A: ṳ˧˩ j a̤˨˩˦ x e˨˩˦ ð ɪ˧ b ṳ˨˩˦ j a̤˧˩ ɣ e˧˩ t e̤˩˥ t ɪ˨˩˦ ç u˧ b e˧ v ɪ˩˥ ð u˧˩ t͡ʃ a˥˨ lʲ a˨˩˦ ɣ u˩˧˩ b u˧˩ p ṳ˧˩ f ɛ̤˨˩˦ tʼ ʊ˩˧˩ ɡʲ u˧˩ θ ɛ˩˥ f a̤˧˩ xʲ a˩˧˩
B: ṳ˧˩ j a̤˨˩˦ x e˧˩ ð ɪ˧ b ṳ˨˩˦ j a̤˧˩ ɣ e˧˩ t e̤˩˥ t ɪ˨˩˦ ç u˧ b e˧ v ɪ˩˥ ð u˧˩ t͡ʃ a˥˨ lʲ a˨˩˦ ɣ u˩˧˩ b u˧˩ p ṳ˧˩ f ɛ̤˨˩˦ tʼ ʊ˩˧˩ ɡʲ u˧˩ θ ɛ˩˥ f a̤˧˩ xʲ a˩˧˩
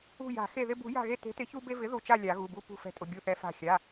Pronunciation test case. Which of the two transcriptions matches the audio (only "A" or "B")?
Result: B